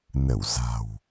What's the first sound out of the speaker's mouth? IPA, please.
n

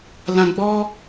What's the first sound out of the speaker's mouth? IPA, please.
l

